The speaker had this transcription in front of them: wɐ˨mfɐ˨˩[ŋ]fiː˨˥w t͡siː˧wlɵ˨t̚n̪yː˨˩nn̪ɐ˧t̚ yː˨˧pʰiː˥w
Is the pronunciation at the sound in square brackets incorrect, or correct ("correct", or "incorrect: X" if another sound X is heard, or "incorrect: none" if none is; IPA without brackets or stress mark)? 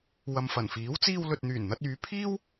incorrect: n